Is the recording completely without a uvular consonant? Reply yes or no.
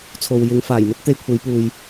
yes